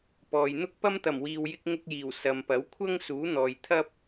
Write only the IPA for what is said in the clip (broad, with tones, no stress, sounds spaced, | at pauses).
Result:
p ɔː˨ j n̪ ʊ˥ k̚ p ɐ˥ m t̪ ɐ˨˩ m w iː˨ w j ɪ˧ k̚ ŋ ʊ˧ k̚ j iː˨˩ w s ɐ˨ m p ɐ˨˥ w kʷʰ ɐ˥ ŋ s uː˨˥ n̪ ɔː˨ j t̪ʰ ɐ˥ p̚